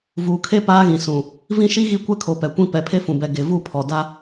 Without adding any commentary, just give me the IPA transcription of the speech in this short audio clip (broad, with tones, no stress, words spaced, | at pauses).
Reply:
vuː˨kʰe˦ paː˦ɣĩ˨sũ˨ | vĩ˦ʃi˦ɣi˦kʷɛ˦ kʰo˨ pɛ˨kʷĩ˦ pɛ˨pʰe˦fũ˨bɛ˨ ɡe˨vu˦˨pʰɔ˨ da˦